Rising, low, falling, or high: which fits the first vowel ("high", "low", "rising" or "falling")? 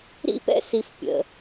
high